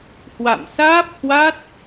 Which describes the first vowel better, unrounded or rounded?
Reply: unrounded